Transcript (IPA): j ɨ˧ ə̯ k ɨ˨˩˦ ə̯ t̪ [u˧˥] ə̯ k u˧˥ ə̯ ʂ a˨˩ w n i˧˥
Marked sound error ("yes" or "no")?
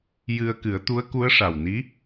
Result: no